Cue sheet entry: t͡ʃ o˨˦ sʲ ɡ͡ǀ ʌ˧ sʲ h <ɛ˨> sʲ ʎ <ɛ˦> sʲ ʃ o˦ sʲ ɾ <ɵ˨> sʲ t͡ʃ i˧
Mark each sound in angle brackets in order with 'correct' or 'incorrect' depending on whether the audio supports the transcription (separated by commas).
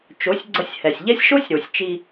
correct, correct, incorrect